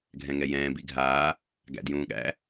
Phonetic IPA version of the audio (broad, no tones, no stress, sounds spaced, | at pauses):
ɡʱ ɛ̃ ŋ ɛ j ɛ̃ː b i ɡʱ aː | ɡ æ̰ d j ũː ɠ æ̰